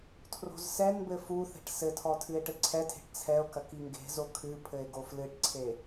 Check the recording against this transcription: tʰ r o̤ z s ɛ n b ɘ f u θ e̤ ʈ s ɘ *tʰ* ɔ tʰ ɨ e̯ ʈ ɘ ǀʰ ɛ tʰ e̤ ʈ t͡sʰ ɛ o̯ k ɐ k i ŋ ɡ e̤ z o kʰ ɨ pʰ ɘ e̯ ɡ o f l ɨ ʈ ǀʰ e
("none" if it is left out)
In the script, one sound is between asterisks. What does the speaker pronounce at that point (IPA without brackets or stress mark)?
tʰ